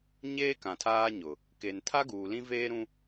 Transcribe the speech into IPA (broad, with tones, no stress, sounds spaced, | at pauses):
ɲ eː˦ k ã˨ tʰ aː˦ ɲ ʊ˨ | k e˨ n tʰ a˦ ɡ uː˨ l ĩ˦ v eː˦ ɾ ũ˦